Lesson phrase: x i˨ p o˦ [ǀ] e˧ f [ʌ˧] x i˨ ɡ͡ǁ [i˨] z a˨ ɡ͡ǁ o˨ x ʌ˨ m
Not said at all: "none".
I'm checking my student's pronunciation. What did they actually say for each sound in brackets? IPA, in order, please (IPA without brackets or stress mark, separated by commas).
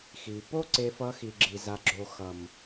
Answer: ǀ, ʌ˧, i˨